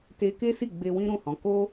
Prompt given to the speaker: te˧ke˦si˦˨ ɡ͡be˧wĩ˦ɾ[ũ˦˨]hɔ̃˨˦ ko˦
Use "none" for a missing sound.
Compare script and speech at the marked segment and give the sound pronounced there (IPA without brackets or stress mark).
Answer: ũ˦˨